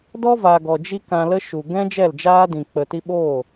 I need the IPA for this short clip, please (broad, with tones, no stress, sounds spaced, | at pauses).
d ɔ˦ v a˨ ɡ ɔ˨ d͡ʒ i˦ k ã˧ l ə˦ ʃ u˨ ɡ ɛ̃˦ d͡ʒ ɛ˦˨ l d͡ʒ aː˦ d ĩ˨ k͡p ə˨ t i˧ ɓ o˦˨